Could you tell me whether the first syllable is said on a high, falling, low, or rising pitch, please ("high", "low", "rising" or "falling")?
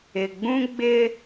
low